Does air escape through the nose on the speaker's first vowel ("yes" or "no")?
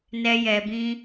no